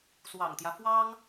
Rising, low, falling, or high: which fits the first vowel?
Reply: low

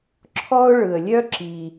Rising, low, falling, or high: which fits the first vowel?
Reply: high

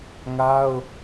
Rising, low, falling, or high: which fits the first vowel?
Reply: high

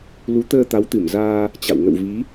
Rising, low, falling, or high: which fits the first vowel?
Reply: rising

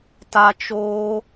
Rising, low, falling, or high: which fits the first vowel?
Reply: high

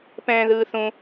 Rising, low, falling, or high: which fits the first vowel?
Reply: high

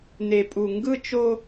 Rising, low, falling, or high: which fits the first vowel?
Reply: low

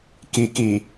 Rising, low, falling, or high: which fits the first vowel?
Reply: low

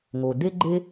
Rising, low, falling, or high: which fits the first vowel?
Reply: low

